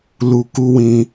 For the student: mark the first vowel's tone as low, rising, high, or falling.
low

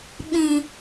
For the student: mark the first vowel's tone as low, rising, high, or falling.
low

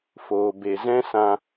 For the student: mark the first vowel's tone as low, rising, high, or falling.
low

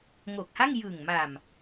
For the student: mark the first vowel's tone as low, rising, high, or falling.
low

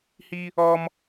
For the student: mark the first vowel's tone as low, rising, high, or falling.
high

